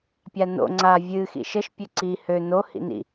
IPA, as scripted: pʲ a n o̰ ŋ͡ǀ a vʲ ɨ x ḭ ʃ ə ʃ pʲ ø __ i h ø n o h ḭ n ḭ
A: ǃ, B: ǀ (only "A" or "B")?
B